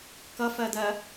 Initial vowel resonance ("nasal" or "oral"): oral